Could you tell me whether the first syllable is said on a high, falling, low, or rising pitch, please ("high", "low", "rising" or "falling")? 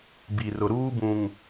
low